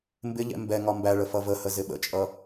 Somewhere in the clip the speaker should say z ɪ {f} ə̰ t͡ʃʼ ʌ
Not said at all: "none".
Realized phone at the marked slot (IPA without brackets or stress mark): ɓ